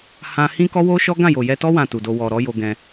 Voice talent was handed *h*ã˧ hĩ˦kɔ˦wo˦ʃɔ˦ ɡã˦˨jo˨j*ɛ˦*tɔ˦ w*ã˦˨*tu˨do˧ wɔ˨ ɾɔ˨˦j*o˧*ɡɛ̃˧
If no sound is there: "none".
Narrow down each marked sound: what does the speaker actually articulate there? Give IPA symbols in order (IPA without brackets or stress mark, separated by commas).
h, ɛ˧, ã˦˨, o˧